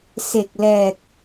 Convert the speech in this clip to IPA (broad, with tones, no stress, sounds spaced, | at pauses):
s e˨˩ k̚ l ɛː˨˩ k̚